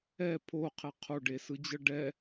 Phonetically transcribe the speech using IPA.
ɛ pʰ o qʰ ɛ qʰ o ɖ e s ɯ d͡ʑ ɤ ɖ ɛ

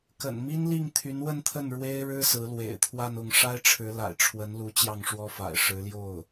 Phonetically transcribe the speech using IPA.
k ə̰˨˩ n m i˥ n l i˥˩ ŋ t̪ʰ y˧˥ n w ə˥˧ n t̪ʰ ə˥˩ n ɻ w e˥ ɪ̯ ɻ ɻ̩˥ s ɹ̩˧˥ l w ḛ˨˩ ɪ̯ t̪ʰ w a˥˧ n ʊ˥˩ ŋ ʂ a˥ ɪ̯ ʈ͡ʂʰ ɻ̩˧˥ l a̰˨˩ ɪ̯ ʈ͡ʂʰ w ə˧˥ n l u˧˥ t͡ɕ j ɑ˥˩ ŋ ʂ w ɔ˥ f a̰˨˩ ɪ̯ ʂ ɻ̩˧˥ l j o˥˩ ʊ̯

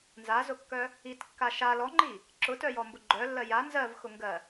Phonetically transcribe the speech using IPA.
n z a z ʊ kː œ | i t kː a ʃ a l ɔ ŋ͡ǃ i | ǁ ʊ t œ j ɔ m b ʊ ɡ͡ǃ œ lː ɜ j a n z ɜ v x ʊ ŋ ɡ ɜ

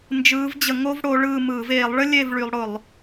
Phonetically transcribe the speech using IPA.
n d͡ʒ ɯː˨˦ v d͡ʑ ə˧˩˧ ŋ o˥ v ɽ o˨˦ ɭ ɯː˦˨ m ɯː˧˩˧ v eː˧˩˧ lˠ ɭ ə˥ lʲ e˦˨ v ɭ y˨˦ lˠ ɽ ʊ˧˩˧ lˠ

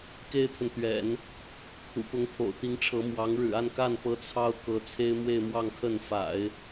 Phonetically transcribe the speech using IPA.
k e˥ ɪ̯ t̪ʰ ə˨ n t̪ ɥ ɛ̰˨˩˦ n | t̪ ṵ˨˩ p ʊ˧˥ ŋ pʰ o̰˨˩ ʊ̯ t̪ i˧˥ ŋ ʈ͡ʂʰ ɤ˧˥ m w ɑ˧˥ ŋ ɻ ɻ̩˨˩ a˥˧ n k a˥˩ n p ɤ˧˥ t͡sʰ ɑ˥ ʊ̯ k ɤ˧˥ t͡sʰ e˥ ɪ̯ m w e˥˧ ɪ̯ m w ɑ˥˧ ŋ kʰ ə˥˩ n f a̰˨˩˦ ɪ̯

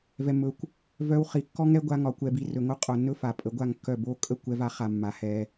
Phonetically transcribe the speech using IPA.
v ɛ˧ mː ɵ˧ kʷ | v œ˧ w χ i˨ kː ɔ˦ ŋ ɛ˦ ɡʷ a˦ ŋ ɒ˧ kʷ ɛ˧ b i˧ r ɵ˨ ŋ o˦ qʼ o˨ nː ɵ˦ f a˨ pʼ ə˨˦ ɡʷ a˦˨ ŋ kː œ˦˨ b o˦ kʼ ə˦˨ kʷ ɛ˧ v a˧ χ a˨ mː a˨ h ɛ˧

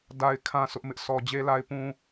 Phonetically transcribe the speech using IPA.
d a˨ ɪ̯ kʰ ã˨ sʰ ʊ˦ ʔ m ɪ˦ ʔ s ɔ˨ d͡ʑ e˦ l a˦ ɪ̯ p ũ˦

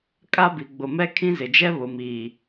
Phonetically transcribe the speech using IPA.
kʼ a˦ b i˨ ɡ͡b ʊ˨ m ɛ˦ kʰ ĩ˦ z ɪ˨ d͡ʒ ɛ˦ β ʊ˨ m iː˨

